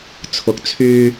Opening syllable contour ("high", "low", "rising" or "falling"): rising